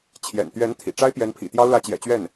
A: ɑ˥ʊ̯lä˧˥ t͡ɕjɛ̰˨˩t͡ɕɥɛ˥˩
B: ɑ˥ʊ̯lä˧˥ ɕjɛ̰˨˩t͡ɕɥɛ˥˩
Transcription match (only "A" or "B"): A